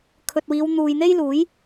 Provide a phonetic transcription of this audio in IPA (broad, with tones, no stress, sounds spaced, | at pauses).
kʰ ɵ˨ t̚ w iː˨˧ w n̪ uː˨ j n̪ e˥ j l uː˨˥ j